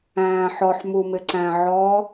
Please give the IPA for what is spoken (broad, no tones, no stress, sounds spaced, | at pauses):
æ̃ː ħ ɔ ħ m u m ɪ ǀ æ̃ ʕ ɔ